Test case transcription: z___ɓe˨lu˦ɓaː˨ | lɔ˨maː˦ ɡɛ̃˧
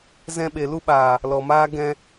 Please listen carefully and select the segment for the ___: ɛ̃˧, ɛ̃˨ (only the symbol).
ɛ̃˧